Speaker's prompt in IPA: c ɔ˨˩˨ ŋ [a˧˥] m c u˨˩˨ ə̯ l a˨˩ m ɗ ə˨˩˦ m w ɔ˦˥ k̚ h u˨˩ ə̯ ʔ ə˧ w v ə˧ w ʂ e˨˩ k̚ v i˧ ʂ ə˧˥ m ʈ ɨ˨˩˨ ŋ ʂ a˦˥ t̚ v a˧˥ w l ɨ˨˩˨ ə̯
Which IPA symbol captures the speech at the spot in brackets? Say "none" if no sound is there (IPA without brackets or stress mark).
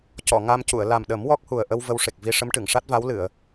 a˧